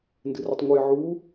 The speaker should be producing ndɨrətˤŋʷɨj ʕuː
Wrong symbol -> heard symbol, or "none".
none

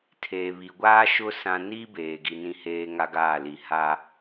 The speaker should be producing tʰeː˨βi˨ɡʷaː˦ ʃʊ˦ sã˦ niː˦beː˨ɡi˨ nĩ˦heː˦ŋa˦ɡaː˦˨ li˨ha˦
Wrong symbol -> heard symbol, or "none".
none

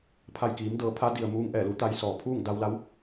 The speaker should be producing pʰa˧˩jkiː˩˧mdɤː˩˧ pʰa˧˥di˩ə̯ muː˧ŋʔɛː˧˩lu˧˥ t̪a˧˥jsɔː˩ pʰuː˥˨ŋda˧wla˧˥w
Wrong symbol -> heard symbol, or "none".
none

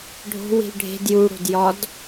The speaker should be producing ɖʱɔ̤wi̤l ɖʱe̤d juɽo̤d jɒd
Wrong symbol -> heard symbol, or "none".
ɔ̤ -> o̤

